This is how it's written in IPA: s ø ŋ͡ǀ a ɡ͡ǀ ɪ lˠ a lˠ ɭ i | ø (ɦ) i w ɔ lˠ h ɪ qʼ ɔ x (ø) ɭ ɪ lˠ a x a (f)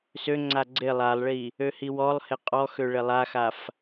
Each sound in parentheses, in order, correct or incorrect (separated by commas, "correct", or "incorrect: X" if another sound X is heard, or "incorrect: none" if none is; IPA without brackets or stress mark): incorrect: h, correct, correct